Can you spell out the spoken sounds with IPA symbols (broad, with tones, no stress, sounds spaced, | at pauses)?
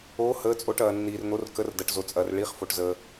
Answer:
oː˧˥ h əː˧˥ t͡sʼ o˧˥ ʈ ɐː˧ nː iː˧ r n̪ o˧˥ r k ə˧˥ r d ɐ˧ ʈ z o˧ t͡sʼ ɐː˧ r ɭ i˧˥ χ f o˧ ʈ z əː˧